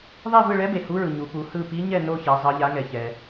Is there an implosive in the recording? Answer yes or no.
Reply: no